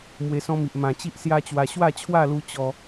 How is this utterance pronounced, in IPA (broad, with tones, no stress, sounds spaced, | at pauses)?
m w e˧ s ɔ̃˦ m i˨ ʔ m ã˨˩ t͡ɕ i˦ ʔ s j a˦ t͡ɕ w a˧ ɕ w a˥˧ t͡ɕʰ w a˥˧ l u˧ t͡ɕ ɔ˧